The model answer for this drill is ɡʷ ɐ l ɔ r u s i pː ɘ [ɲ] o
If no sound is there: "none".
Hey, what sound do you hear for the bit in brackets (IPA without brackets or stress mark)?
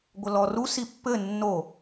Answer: nː